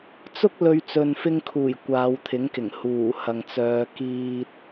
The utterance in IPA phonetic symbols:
t͡sʊ˥k̚ lɵ˧ɥ t͡sɵ˨nfɪ˧ŋkʰuː˨˩j kʷaː˨˧wt̪ʰɪ˨˥ŋkɪ˨˩ŋ huː˨˩hɐ˨ŋt͡sœː˨˧ kiː˨t̚

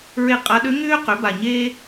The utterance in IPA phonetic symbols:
ɹe˦˨qʼa˧˥ ɗø˧˥ŋʏː˥ qø˩˥ba˨˩ɲeː˥

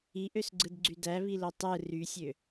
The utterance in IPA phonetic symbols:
iʔøsɡ͡ǀɯdɡ͡ǀy dæβilo tˤɯ rysʲø

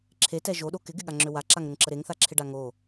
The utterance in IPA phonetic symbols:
ǁʰetɛ ʒoɗo kɪɡɪɠaŋ͡ǁø waǁaŋɾəŋǁə ɾeŋθaǁʰɪɖa ŋo

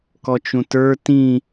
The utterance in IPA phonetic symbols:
kɔt͡ʃũtə˞ tĩ

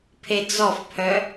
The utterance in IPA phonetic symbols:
pʰed͡zɔfpʰœ

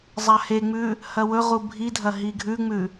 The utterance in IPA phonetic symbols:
zˤaheŋ͡mʉ | hɐwɵʁu bʱidʱɐ ɦiɡʱʉŋ͡mʉ

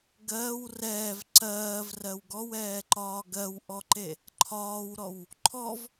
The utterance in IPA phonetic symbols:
ɡɜːw rɛːv ǀɜːvrɜw ɡɔwɛːǃɒː ɡɜwʔɔǃe | ǃʰɒːwɾɔw | ǃʰɔv

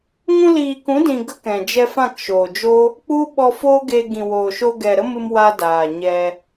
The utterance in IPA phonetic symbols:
ŋũ˧liː˨kũ˨˦dĩ˨ ɡə˦kɛ̃˨ d͡ʒɛ˧fã˦˨kʃoː˨d͡ʒo˦ | k͡pu˦ ɓɔ˧foː˦ɡeː˧ ɡĩ˨woː˨ʃoː˧ ɡɛ˨ɾə˦mɨ˧m wa˦ daː˨ɲɛ˧

